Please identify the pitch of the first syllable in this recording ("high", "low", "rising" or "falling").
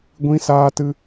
high